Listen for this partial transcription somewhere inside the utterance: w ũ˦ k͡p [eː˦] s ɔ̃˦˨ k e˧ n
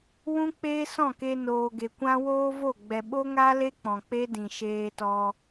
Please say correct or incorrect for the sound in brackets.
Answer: correct